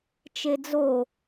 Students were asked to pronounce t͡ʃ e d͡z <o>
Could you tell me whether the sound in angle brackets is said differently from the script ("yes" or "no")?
no